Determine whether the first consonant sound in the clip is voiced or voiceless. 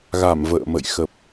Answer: voiced